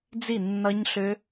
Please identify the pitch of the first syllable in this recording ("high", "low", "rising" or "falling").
falling